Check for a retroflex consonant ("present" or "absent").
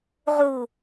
absent